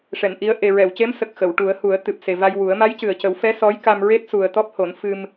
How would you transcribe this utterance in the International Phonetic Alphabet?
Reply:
ʂ ɛ˨˩˨ n ʔ i˧˥ ə̯ ʔ e˨˩ ɹ ɛ˨˩˨ w c e˧˥ m s ə˨˩ k̚ x ə˨˩˨ w ʈ u˨˩˦ ə̯ h u˨˩˦ ə̯ t̪ ɨ˨˩ p̚ s e˨˩ v a˧ j w u˨˩˦ ə̯ m a˧˥ j c ɨ˨˩ ə̯ c ə˨˩˦ w f ɛ˧˥ s ɔ˧˥ j k a˧ m ɹ e˦˥ t̚ s u˨˩ ə̯ t̪ ɔ˦˥ p̚ h o˨˩˦ n f ɨ˧ m

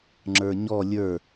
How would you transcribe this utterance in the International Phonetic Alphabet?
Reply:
ŋ͡ǁ ə˞ ɲ ɔ lʲ ə˞

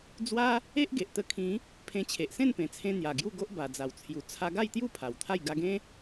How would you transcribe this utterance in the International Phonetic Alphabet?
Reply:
d͡z w a˦ | e˦ ʔ ɡ e˨ ʔ t̪ ə˧ kʰ ĩ˨˦ | pʰ ẽ˧ t͡ɕʰ e˨ ʔ s ẽ˥˧ n p ẽ˨˩ t͡sʰ ẽ˧ n̪ j a˨˩ ɡ j u˥˧ ɡ o˦ ʔ b a˨˩ d͡z a˨˩ w t͡sʰ j u˨˩ t͡sʰ a˧ ɡ a˥˧ j t̪ j u˥˧ pʰ a˨˩ w t̪ʰ a˥˧ j ɡ a˧ ɡ ẽ˦

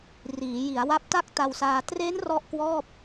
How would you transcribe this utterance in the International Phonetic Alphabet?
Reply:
r iː˩˦ j i˩˦ a̯ w a˦˥ p̚ t a˥˩ k̚ t a˧ w s aː˧ t r e˦˥ n r ɔ˥˩ ʔ k w ɔː˥˩ p̚

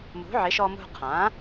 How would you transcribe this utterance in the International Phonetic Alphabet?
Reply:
m ṳ˩˥ ʕ ɪ˩˥ ʃ ɔ˧ m ṳ˧ qʰ ã˩˥

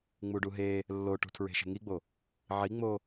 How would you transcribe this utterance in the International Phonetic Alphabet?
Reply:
ŋ͡m u ɖ u ɦ eː | lː o ʈ ṳ tʰ ɹ e̤ ʃ e̤ ŋ i ɡ͡b o | ʕ i ŋ͡m oː

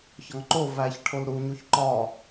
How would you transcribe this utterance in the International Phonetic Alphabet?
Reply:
ç ɒ ŋ ǃ o v æ ç ʈʰ o l ɾ u ɲ u ç ǃ ɒ

